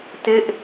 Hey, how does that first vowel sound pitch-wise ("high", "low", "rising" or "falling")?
falling